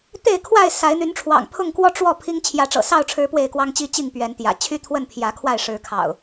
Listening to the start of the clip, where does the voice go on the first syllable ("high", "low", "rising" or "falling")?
falling